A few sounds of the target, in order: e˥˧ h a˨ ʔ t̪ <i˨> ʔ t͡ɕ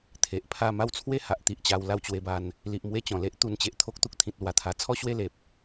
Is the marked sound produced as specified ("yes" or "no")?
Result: yes